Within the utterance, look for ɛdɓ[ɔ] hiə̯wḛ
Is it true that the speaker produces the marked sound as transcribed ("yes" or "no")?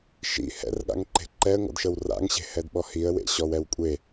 yes